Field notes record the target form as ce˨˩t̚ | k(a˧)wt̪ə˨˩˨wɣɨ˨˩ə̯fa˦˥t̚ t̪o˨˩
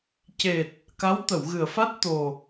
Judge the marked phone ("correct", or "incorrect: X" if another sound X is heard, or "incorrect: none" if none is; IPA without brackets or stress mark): incorrect: a˧˥